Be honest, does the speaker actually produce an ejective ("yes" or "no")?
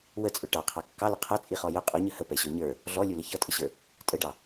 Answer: yes